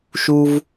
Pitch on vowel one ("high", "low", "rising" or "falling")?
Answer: high